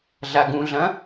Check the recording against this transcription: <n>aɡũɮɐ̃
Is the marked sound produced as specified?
no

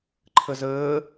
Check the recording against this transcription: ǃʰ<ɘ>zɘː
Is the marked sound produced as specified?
yes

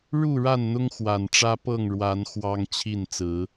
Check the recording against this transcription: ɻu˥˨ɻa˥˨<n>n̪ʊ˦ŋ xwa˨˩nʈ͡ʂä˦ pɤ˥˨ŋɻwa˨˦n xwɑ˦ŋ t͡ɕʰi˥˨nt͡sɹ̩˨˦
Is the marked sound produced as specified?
yes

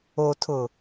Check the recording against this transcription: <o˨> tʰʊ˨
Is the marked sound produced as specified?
yes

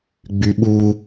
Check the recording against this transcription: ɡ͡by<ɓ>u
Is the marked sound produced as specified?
yes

